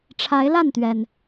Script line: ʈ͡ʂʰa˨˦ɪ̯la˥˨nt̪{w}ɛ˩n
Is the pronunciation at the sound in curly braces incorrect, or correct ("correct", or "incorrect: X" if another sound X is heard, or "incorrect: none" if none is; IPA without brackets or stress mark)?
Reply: incorrect: ɥ